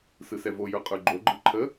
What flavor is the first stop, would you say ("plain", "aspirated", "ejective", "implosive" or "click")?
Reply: ejective